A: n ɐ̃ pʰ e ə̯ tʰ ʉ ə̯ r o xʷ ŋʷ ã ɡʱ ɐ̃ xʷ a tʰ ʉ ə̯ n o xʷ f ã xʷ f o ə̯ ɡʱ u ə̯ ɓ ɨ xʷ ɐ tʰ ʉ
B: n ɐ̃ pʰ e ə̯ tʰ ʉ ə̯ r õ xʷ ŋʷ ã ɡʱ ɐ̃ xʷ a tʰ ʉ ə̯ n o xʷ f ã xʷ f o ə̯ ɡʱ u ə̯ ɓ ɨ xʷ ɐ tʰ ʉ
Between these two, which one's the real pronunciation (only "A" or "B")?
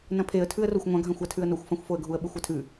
A